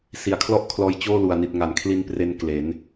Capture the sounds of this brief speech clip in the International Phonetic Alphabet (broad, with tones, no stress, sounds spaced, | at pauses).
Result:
s i˨˩ a̯ kʰ l ɔ˥˩ ʔ kʰ l ɔː˧ j t͡ɕ oː˥˩ l u˨˩ a̯ n i˨˩ t̚ ŋ a˩˦ n kʰ l i˧ n p r e˧ n k l e˩˦ n